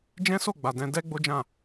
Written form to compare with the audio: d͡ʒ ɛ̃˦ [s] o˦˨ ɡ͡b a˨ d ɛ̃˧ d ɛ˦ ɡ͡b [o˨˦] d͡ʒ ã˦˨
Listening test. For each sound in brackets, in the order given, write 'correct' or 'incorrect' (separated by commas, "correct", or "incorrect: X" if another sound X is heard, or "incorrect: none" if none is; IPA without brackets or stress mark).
correct, incorrect: o˦